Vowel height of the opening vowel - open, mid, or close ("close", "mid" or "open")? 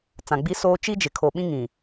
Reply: open